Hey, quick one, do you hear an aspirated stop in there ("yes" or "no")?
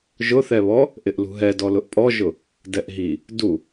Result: no